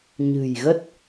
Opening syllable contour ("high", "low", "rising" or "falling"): low